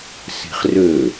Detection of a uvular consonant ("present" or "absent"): present